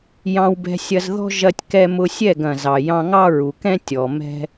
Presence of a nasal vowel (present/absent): present